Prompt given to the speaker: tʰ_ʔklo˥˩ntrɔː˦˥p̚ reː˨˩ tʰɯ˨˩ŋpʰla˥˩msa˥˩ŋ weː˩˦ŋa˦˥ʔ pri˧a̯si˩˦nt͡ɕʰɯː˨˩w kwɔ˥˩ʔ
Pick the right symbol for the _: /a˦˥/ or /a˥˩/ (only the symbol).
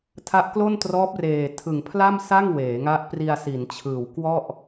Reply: a˦˥